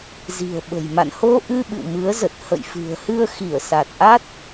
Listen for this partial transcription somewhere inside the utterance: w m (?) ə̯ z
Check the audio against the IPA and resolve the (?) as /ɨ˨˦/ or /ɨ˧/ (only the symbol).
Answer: ɨ˨˦